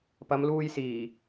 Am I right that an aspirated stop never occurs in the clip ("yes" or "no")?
yes